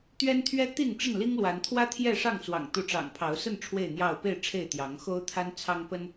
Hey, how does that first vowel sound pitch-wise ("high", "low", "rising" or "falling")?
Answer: high